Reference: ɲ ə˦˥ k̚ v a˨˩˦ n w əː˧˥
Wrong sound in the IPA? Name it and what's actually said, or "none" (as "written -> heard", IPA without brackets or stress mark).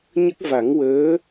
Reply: n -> ŋ